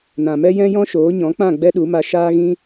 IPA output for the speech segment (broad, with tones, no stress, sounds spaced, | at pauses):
n ã˨ m ɛ˦ j ɛ̃˦ j ɔ̃˦ ʃ oː˨˦ ɲ ɔ̃˨˦ k͡p ã˦˨ ɡ͡b ɛ˦ ɗ u˨˦ m a˧ ʃ aː˦ ɣ ĩ˦